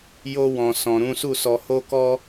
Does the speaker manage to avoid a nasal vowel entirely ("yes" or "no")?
no